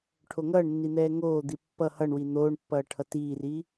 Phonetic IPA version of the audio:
ʈʰoŋʌːɳnːi n̪ɛːŋoːd̪i pːʌ hʌɳwi n̪oːɳpːʌː ʈʰʌtiːriː

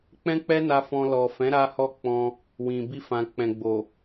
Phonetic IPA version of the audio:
k͡pɛ̃˦k͡pɛ˦na˧ fɔ̃˧ lɔ˨ fɛ̃˨˦ ɾa˦hɔ˦ k͡pɔ̃˧ | wĩ˨ bi˧fã˨k͡pɛ̃˨ ɡ͡bo˨

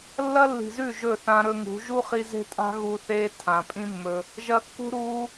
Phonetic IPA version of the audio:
lːɐ˦lːi̤˨zʉ˦˨ ʒɵ˦˨θã˧ɾɵ˧ŋṳ˨˦ ʒu˦χi˧ ze̤˦tʼa̤˦ ɣu˧θeː˦ tʰã˨pʼĩ˦mːɵ˧ | ʒɐ˧ kːṳ˦ ɾuː˧

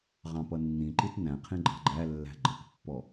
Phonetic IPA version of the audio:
ʁɑ̃pʌnːĩǃit næ̃qʰĩ ɡ͡ǃɑ̤ɡ͡ǃælːæ̤ ɡ͡ǃʌkpːɔ

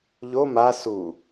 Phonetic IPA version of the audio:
ʎo ma su

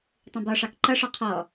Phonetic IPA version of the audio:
tˤũbɒʂɑk ǃʌʂɒ qʰɔ

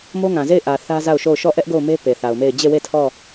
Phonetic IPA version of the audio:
mo˦ŋã˨ze˦˨ɪ̯ʔä˨ θä˦ za˦˨ʊ̯ʃo˦˨ʊ̯ ʃɔ˦˨ʔɛ˦ʔ ɡo˦˨ʊ̯me˦ pe˨θa˨ʊ̯me˦˨ɪ̯ d͡ʑe˦˨we˦˨ tʰɔ˦˨

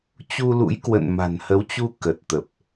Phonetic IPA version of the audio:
t͡ɕu˧lṵ˧˥j kwə̰˧˨n ma̤˨˩nhə˨˦wt͡ɕu˧ kə˨˩t̚t̪ə˨˩p̚

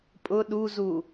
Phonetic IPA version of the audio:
pʼʊ ɗuzu

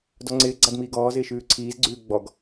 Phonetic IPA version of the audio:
dɔŋ͡ǀɪː ɡ͡ǀadmiːɡɔː zɪːʃʉːǀʰiːz ɡ͡ǀʉːɡ͡bɔɡ

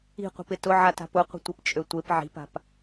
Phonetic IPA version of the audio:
i̤qʷə̤pɪ tʊʕata̤p ʊqʷə̤tʷɪpt͡ʃʼø tʷep ʕi̤pa̤p

